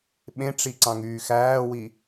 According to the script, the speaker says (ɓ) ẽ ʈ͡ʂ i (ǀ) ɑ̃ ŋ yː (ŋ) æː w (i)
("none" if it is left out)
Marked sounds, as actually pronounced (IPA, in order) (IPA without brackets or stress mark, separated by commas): ɓ, ǀ, x, i